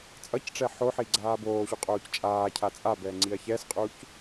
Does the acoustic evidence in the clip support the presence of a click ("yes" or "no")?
yes